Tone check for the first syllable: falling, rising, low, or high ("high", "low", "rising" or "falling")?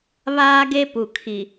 high